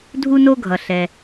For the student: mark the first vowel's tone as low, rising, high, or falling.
high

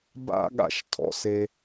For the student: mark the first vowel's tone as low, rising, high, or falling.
high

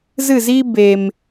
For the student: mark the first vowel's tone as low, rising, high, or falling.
falling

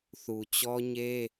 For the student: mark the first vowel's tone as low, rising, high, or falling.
low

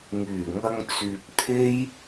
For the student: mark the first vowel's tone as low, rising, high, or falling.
low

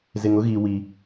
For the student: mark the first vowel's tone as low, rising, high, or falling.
low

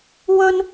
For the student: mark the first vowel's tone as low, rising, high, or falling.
high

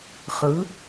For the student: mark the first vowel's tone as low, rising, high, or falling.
rising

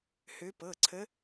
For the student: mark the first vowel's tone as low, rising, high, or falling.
rising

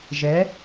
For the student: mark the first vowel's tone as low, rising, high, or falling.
rising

